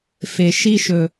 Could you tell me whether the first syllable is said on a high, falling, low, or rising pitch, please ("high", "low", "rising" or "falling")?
low